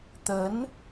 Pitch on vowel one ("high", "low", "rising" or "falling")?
rising